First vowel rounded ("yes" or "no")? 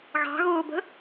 no